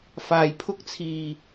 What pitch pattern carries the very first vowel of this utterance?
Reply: low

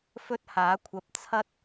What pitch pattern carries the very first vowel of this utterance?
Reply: high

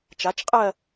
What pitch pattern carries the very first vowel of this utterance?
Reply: rising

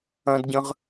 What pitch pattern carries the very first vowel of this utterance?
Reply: high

